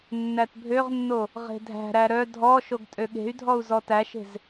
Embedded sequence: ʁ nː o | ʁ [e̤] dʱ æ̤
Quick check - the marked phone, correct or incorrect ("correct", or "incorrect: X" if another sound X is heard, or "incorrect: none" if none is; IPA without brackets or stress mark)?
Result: correct